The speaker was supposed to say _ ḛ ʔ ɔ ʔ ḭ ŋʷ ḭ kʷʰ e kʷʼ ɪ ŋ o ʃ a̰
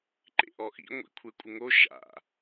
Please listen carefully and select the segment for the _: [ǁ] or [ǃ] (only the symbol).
ǃ